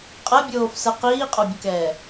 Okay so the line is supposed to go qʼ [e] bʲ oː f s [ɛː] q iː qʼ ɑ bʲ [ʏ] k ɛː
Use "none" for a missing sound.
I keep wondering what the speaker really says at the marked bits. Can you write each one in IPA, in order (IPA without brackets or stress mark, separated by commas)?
ɛ, ɛ, ə